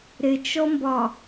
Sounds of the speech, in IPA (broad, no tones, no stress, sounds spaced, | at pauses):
ɾ ɪ t͡ʃ ɔ m b ɒ